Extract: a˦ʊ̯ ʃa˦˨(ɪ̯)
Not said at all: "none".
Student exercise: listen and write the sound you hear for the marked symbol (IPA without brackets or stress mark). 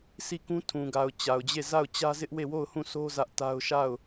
ʊ̯